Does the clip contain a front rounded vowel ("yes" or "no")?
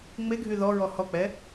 yes